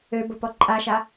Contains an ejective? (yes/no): yes